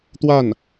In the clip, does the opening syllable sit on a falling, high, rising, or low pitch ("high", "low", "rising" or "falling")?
falling